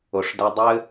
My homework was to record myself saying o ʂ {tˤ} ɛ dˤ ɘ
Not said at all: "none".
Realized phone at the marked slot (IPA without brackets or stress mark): d